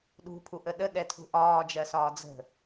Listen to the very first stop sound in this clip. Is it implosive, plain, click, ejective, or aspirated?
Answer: implosive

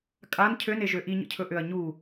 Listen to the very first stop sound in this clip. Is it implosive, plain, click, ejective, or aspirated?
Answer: ejective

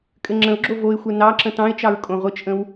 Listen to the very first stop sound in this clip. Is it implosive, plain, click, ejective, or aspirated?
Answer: ejective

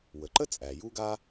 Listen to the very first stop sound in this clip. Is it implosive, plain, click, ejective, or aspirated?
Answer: click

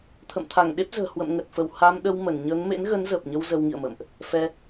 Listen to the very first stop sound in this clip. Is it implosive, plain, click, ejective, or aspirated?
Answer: aspirated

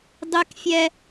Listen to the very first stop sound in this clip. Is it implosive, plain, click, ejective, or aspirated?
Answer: plain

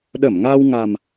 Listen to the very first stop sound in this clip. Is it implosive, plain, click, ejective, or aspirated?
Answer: implosive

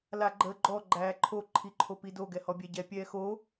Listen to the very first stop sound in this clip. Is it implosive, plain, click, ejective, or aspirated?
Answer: click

